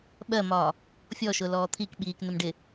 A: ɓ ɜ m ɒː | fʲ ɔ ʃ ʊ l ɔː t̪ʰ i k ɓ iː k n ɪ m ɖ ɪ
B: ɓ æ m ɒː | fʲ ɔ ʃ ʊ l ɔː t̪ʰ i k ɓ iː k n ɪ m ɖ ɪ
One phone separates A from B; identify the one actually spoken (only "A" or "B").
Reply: A